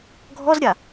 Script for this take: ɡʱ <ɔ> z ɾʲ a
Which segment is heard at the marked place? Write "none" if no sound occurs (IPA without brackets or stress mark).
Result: ɔ